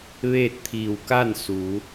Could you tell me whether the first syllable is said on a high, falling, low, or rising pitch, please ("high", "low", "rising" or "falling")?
falling